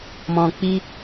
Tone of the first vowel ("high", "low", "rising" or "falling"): low